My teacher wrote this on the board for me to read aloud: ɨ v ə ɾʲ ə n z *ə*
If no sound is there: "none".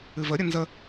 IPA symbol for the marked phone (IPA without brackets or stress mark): ə